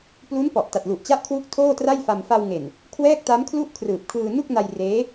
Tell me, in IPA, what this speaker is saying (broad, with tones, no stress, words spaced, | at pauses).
plu˦˥npɔ˨˩ʔ ta˨˩t̚ lu˨˩ʔt͡ɕa˦˥ʔkʰwu˦˥k̚ tʰoː˥˩tra˥˩jfa˧m fa˧wŋe˨˩n | kʰwɛː˥˩k̚ta˦˥mkʰlu˥˩ʔ kʰrɯː˨˩p̚kʰɯː˧nu˥˩k̚na˧j reː˦˥